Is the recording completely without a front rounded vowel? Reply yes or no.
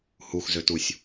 no